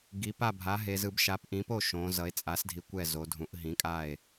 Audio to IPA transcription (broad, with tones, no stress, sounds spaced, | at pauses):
ɡ i˩˧ p a˥˩ bʱ a˩˥ ɦ e˩˧ z ɯ˩˧ b ʃ a˩˥ p ʔ ĩ˩˥ p o˥˩ ʃ õː˩˧ z ʌ˩˧ e̯ t͡sʼ a˩˥ s dʱ i˩˧ kʷ ɛ˥˩ z o˩˧ dʱ ũ˩˥ ʔ ɦ ĩ˩˥ kʼ a˥˩ e̯